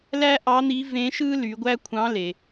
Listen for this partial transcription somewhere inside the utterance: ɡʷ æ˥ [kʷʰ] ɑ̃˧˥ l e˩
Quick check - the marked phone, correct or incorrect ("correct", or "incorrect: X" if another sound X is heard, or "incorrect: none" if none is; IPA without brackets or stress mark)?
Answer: correct